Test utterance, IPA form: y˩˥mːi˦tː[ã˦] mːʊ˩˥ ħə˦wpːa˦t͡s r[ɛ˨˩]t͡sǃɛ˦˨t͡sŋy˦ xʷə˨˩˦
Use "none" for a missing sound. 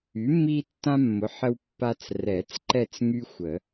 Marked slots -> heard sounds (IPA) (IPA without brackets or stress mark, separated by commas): ã˦, ɛ˨˩˦